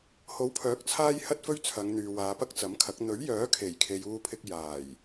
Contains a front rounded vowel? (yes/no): yes